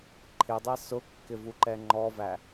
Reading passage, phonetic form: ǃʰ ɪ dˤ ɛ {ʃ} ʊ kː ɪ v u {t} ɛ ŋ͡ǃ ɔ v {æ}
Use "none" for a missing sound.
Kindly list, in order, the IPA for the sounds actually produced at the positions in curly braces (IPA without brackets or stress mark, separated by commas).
s, ǃ, æ